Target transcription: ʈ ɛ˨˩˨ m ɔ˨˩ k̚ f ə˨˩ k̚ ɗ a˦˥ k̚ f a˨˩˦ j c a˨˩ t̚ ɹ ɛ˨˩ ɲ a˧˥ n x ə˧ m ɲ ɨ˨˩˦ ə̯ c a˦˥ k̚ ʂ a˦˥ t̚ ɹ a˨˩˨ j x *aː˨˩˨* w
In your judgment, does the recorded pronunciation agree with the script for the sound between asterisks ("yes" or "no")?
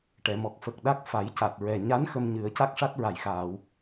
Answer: yes